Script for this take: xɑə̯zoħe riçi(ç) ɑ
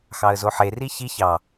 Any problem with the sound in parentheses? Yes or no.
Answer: no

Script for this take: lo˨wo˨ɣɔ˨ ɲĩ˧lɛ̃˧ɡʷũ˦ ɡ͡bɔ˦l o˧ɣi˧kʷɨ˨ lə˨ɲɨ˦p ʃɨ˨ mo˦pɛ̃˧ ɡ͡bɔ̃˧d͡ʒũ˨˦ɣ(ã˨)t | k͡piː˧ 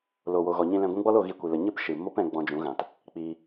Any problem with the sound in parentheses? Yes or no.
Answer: no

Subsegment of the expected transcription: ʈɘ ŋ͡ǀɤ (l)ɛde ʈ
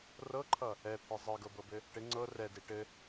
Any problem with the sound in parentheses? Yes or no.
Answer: yes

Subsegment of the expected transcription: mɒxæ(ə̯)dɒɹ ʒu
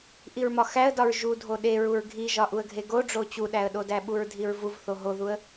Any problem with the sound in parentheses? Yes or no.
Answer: no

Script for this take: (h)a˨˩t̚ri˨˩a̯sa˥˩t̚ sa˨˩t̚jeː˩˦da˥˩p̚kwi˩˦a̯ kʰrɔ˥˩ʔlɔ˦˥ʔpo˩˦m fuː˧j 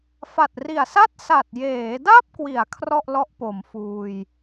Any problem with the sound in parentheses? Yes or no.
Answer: yes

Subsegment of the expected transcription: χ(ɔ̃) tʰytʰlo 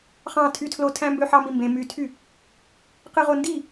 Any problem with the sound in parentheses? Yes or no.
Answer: yes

